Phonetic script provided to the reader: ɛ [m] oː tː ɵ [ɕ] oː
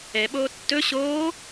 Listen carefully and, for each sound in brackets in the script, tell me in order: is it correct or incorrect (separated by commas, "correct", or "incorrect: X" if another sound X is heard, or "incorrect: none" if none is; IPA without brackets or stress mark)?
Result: incorrect: ɓ, correct